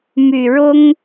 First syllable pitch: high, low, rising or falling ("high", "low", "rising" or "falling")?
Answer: low